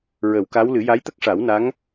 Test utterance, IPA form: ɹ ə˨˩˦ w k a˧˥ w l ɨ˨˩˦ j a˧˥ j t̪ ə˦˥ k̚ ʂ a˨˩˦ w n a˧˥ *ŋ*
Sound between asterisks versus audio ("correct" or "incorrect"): correct